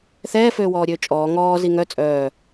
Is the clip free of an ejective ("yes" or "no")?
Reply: no